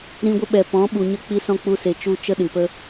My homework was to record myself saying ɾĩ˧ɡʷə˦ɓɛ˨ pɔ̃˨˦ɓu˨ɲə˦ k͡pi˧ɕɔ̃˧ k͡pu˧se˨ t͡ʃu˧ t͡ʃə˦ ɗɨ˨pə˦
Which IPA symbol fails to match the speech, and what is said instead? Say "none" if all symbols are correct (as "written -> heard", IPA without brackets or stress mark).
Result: ɕ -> s